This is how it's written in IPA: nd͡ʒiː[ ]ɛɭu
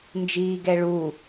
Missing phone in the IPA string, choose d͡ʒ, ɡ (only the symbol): ɡ